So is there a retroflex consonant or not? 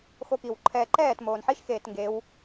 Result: no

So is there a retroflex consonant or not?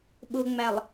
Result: no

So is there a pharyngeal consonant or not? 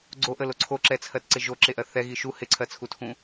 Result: no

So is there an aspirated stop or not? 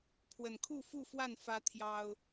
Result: yes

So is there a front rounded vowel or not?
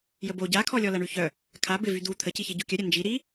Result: yes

